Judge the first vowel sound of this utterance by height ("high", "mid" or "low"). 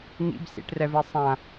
high